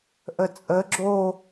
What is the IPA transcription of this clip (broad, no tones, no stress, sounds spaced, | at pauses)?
ʔ ə t͡sʼ ə ɡ͡ǁ o